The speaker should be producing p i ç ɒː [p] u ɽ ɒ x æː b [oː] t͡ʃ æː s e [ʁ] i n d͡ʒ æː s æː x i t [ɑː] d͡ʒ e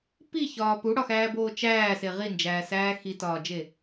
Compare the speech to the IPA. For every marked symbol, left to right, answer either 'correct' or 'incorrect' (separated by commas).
correct, correct, correct, incorrect